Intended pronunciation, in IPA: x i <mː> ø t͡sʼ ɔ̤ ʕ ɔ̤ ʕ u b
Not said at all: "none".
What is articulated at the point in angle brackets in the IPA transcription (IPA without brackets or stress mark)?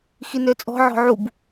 n